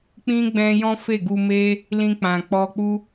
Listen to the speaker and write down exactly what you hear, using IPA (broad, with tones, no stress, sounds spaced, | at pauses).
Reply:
k͡p ĩ˦ ɡ͡b ɛ̃˧ j ɔ̃˦ f e˦˨ ɡ u˧ m e˦ | l ĩ˧ k͡p ã˨ k͡p ɔ˧ k͡p u˦